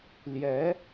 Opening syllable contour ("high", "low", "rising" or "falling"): rising